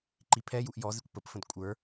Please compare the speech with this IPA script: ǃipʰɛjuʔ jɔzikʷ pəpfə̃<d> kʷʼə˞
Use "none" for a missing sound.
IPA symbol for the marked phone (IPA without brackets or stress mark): d